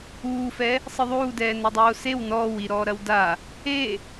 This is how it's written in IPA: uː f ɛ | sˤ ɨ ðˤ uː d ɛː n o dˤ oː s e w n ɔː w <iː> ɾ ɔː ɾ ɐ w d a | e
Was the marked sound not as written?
yes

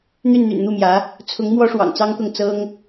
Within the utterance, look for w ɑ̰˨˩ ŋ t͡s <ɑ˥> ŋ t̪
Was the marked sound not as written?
no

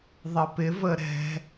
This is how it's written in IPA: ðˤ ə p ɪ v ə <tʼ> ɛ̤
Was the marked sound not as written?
yes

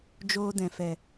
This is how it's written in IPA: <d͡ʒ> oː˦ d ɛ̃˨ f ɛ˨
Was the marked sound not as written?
no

